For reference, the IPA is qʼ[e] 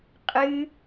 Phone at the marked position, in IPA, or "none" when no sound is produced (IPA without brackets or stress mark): ɨ